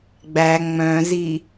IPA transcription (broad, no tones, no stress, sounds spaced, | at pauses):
ɡ͡b æ ŋ͡m œ̃ z i